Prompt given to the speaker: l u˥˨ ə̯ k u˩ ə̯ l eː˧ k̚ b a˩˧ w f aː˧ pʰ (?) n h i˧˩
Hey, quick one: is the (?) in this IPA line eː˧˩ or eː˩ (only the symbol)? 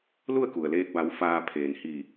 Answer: eː˩